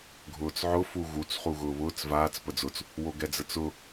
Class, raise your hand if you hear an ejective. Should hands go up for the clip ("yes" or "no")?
no